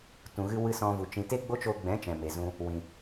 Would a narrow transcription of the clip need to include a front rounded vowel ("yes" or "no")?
no